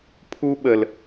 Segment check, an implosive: present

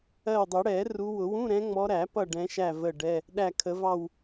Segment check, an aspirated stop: present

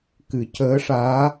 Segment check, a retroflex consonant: present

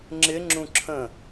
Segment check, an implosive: absent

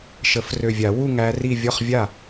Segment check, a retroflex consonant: absent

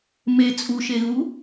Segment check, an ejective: present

